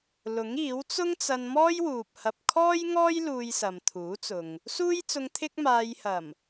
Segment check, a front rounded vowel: absent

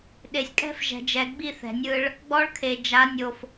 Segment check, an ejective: present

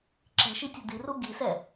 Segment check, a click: present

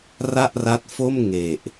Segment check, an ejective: absent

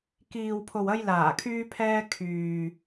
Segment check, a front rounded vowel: present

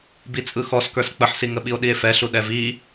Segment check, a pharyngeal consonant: present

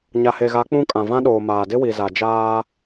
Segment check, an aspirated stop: absent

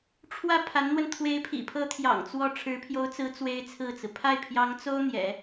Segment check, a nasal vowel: absent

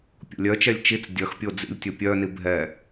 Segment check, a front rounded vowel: present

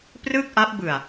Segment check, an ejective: absent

